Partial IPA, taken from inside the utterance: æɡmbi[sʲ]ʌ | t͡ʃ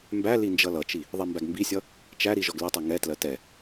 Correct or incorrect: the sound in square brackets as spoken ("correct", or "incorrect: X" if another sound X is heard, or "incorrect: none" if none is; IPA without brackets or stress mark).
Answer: correct